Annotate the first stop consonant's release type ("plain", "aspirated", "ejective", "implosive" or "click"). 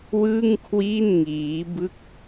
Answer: aspirated